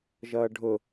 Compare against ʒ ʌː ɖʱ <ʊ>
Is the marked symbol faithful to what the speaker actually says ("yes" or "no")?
yes